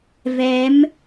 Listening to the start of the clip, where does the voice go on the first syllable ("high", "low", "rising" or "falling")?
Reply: rising